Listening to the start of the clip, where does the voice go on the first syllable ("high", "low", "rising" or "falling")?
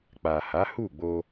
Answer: low